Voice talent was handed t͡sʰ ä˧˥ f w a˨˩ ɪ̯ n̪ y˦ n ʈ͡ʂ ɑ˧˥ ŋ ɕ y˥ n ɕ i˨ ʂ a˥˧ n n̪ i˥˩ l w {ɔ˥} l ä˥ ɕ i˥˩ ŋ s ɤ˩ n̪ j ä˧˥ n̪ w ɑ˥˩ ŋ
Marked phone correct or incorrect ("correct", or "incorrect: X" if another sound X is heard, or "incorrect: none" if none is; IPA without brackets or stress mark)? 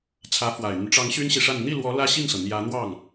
incorrect: ɔ˧˥